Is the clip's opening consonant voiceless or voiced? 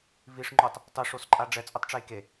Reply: voiced